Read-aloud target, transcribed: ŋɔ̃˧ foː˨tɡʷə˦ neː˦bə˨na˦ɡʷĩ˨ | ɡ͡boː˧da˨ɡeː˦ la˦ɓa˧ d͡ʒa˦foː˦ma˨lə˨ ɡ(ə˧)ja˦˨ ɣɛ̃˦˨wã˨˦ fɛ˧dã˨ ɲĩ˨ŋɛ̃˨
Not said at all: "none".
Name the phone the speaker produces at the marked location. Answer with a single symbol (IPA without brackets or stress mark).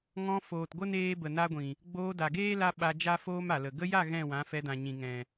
ə˧